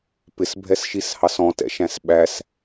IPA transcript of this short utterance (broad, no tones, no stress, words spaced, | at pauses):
pɪsbʱɛsʃishɑs ɔ̃tɛ̰ʃæ̃s ɓæs